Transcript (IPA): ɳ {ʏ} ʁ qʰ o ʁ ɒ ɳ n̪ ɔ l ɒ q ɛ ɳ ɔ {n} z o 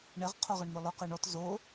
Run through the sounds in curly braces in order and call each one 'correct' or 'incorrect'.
incorrect: ɛ, incorrect: t

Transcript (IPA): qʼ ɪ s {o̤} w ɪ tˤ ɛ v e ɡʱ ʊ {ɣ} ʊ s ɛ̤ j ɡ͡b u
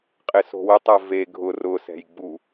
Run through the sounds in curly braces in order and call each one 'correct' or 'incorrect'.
correct, incorrect: r

